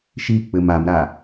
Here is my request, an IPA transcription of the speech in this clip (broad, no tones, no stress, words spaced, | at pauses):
ʃik͡pɘm amɾa